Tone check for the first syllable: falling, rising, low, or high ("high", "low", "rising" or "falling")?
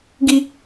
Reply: high